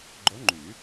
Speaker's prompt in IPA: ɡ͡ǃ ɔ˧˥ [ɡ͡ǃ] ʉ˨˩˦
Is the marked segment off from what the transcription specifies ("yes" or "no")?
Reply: yes